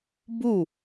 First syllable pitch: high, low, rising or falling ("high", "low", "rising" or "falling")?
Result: falling